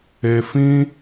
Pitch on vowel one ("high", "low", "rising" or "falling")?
low